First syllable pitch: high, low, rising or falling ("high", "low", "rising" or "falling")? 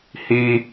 high